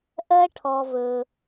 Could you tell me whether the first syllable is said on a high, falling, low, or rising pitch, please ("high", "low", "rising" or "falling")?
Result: high